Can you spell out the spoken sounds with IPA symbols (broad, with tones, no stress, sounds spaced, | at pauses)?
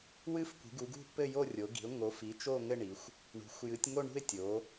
w ɨ˦˨ f kʷ i̤˩˧ ɡ u˩˧ ɡ ṳ˦˨ p ɘ˦˨ j o˦˨ rʲ o˩˧ ɡ i̤˩˧ ʊ̯ ŋ o˩˧ f i˩˧ t͡ʃ o˦˨ ŋ ɘ˦˨ ɳ i˩˧ xʷ | ɳ ṳ˩˧ xʷ j ɨ˩˧ tʲ ŋ o˦˨ ɳ ṳ˦˨ ɪ̯ tʲ o˩˧